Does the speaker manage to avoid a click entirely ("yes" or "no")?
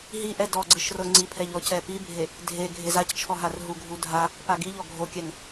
no